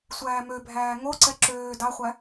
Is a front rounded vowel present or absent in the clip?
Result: present